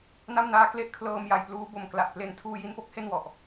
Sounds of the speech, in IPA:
na˥˩mnaː˦˥kle˥˩ʔ kʰlɤː˧mja˨˩j pluː˦˥bo˨˩m kla˨˩ʔple˧n tʰuː˧ji˧npo˥˩k̚ he˥˩nwɔ˨˩ʔ

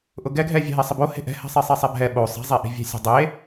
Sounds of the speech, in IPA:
ʔʊɡɛɡʱɛ vʲɛ̤ɦesˤɪbo he̤ʔɛ̤hɛ̤ sˤisˤesˤɛbʱɛ ɓo sˤi̤zˤeʔi̤vʲɛ̤ sʲe̤dˤe

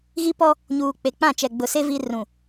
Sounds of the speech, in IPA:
ɣi˦pɔ˦ | ɲuː˨k͡pe˨k͡pã˦˨ t͡ʃɛ˨ɡ͡bʊ˨se˦ vi˦ rũ˨

